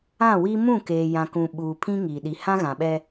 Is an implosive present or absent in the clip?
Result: present